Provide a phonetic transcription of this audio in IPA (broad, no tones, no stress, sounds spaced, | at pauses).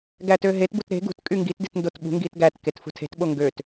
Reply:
ɡ æ t ø ɦ e t b u t ɾ e̤ ɡ ṳ t kʼ y ŋ ɡ i t d i t n d o t ɓ ṳ ŋ ɡ i t ɡ æ t k e t f ṳ tʰ e̤ t ɓ o ŋ ɡ ø t